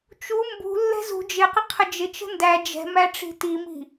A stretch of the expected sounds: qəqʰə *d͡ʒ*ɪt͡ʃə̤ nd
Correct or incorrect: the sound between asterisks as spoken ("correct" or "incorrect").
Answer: correct